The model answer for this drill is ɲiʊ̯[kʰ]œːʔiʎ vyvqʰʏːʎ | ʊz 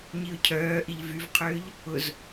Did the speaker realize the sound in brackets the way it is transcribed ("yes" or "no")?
no